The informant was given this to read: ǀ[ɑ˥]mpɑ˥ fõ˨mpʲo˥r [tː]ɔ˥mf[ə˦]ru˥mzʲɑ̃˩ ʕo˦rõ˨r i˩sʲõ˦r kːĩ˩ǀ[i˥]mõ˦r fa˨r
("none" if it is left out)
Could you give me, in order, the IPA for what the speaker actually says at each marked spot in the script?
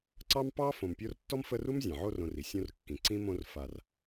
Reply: ɑ˥, tː, ə˦, ĩ˥

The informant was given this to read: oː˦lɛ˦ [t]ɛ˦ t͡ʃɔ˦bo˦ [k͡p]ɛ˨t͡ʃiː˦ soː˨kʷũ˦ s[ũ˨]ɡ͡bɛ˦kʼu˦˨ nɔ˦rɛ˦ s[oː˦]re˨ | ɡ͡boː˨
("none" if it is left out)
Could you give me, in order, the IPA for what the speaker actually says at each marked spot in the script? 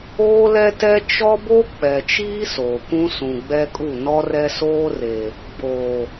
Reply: t, k͡p, ũ˨, oː˦

